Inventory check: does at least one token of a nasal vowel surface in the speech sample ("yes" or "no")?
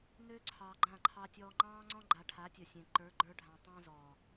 yes